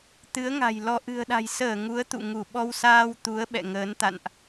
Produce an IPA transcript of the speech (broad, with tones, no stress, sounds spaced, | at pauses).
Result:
t̪ ɨ˨˦ ə̯ ŋ a̤˨˩ j l ɔ˧ ʔ ɨ̤˨˩ ə̯ ɗ a̤˨˩ j s əː˧˩ ŋ u˨˦ ə̯ t̪ ṵ˧˨ ŋ u˧˩ ɓ ɔ˧ w s aː˧ w t̪ u˨˦ ə̯ ɓ ɛ̰˧˨ ŋ əː˨˦ n t̪ a̰˧˨ n ʔ